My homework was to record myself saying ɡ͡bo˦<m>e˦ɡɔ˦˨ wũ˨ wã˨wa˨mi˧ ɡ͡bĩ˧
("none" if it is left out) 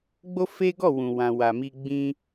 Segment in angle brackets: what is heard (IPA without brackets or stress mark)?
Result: f